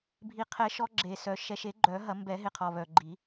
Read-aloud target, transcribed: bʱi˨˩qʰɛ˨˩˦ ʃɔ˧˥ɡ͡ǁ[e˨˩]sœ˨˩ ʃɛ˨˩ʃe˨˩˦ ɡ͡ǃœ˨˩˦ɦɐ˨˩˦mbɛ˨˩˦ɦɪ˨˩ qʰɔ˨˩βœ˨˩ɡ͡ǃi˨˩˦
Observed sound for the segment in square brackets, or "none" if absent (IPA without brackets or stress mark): e˨˩